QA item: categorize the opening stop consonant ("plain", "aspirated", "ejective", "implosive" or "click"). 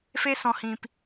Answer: plain